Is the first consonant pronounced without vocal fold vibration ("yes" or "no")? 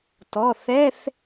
yes